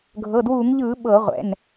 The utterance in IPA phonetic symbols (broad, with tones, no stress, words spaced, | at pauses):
ɡʱɤ˩˧˩dwuː˧˩˧ŋʎɯː˧˩˧ ɓɤ˧˩˧ʁʷɛ̰˩˧˩n